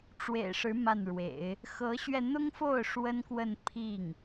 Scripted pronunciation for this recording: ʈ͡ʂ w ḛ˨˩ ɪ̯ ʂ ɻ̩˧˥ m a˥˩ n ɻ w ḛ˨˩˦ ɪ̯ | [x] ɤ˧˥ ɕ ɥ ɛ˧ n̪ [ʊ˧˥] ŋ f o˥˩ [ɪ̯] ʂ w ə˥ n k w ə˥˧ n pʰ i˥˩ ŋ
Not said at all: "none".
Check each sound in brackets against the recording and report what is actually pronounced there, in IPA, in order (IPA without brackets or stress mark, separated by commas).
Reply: x, ʊ˥, ʊ̯